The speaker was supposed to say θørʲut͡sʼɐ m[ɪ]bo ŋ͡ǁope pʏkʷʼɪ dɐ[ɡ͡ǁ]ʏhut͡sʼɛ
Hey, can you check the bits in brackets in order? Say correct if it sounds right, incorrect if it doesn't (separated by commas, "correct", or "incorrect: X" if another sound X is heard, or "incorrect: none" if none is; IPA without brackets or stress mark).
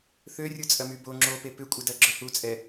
incorrect: y, correct